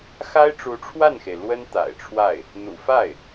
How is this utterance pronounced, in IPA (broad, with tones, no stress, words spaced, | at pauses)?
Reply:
xa˥ɪ̯ʈ͡ʂu˧˥ʈ͡ʂʰwa˥˩nxe˩ɪ̯ lwə˥n t̪a̰˨˩ɪ̯ʈ͡ʂʰwa˥˩ɪ̯ | n̪ṵ˨˩fa˥˩ɪ̯